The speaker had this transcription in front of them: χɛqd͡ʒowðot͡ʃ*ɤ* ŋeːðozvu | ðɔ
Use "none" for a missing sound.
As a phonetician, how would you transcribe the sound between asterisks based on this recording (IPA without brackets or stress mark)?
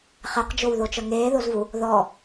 ɤ